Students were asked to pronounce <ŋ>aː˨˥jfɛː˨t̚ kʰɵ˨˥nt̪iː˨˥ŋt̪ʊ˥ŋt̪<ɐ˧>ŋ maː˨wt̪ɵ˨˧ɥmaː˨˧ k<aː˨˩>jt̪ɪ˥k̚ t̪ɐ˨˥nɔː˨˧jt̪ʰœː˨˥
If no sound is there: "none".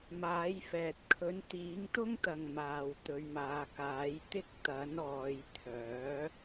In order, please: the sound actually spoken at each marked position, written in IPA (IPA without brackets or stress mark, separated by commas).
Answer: m, ɐ˨, aː˨˥